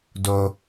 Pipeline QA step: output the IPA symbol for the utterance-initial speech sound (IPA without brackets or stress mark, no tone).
d